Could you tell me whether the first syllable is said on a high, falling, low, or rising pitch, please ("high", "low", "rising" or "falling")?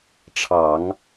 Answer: low